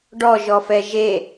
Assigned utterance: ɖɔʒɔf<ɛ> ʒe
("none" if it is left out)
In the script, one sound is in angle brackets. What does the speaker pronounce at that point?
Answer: ɛ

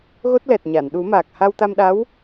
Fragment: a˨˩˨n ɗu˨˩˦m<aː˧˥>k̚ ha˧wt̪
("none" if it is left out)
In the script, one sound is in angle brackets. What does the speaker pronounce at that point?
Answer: aː˨˩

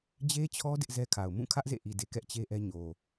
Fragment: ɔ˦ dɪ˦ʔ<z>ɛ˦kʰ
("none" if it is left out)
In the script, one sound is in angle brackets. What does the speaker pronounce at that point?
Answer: z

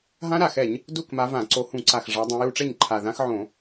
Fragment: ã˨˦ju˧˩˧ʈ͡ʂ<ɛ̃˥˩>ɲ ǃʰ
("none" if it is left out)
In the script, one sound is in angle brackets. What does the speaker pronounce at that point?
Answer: ɛ˥˩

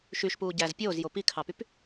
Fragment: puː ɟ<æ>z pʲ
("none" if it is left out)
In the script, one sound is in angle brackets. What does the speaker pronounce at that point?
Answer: æ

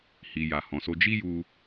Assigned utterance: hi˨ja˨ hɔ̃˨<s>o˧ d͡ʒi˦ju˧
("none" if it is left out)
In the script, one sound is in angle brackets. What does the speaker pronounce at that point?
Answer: s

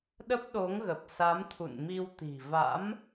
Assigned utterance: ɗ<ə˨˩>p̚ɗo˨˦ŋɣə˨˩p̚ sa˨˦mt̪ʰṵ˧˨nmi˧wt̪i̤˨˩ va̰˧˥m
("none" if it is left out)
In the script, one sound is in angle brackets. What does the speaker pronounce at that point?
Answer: ə˦˥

